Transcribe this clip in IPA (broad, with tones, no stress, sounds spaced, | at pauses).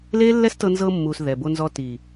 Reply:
l e˦ lː ɛ˦ s t ɤ˧ n z ɤ˧ mː u˨ s ð ɛ˨ b o˧ n z ɔ˧ t i˨